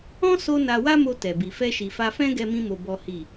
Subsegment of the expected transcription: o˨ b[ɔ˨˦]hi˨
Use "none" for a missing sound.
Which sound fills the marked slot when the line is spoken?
ɔ˨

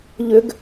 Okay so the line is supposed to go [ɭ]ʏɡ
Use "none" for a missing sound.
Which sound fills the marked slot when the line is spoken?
ʎ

